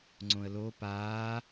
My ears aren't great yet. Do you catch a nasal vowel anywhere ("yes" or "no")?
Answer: yes